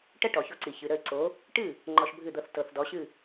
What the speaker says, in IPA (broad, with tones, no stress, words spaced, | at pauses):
ʈə˥ʈɔ˩ço˧ǀi˩ çɨ˩ɾə˥˩ɪ̯ǀo˩˥ | ʈɨ˥˩ | ŋ͡ǃɔ˧ʃbʱɨ˥˩d̪ɤ˧θ tɤ˩θdɔ˩˥ɕɨ˥˩